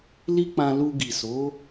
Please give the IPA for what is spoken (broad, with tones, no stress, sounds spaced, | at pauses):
l i˦ k͡p ã˧ l u˧ ɡ i˨ s o˨˦